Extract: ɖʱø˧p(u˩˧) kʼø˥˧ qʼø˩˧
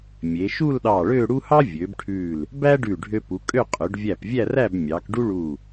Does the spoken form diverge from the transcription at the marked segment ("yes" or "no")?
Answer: no